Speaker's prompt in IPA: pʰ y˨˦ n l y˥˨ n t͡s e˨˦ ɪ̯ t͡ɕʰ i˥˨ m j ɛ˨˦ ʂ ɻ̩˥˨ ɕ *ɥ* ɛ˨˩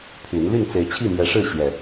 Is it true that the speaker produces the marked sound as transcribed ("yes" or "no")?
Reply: no